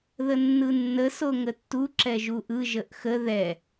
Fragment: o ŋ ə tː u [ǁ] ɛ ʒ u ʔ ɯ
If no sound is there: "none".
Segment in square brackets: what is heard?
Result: ǁ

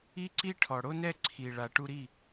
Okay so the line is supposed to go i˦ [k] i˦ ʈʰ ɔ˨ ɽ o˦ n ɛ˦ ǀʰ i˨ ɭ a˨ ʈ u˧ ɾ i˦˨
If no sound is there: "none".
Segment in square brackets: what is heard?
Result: ǀ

